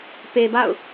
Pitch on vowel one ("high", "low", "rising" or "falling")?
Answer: low